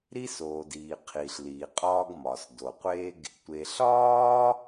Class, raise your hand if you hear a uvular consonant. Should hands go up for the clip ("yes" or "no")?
yes